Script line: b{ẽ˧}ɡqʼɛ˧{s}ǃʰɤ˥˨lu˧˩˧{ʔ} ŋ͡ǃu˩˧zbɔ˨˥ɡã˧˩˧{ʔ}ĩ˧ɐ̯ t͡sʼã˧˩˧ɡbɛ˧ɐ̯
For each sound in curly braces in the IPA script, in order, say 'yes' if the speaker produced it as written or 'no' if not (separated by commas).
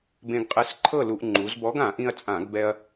yes, yes, yes, yes